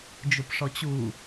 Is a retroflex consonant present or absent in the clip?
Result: present